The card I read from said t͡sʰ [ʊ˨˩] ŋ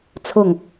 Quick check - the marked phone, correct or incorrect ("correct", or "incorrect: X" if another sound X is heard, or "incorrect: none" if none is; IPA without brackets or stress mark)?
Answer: correct